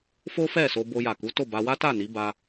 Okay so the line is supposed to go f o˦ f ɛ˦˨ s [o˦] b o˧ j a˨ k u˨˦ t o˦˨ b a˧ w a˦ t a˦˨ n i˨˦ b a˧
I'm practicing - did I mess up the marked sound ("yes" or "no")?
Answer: yes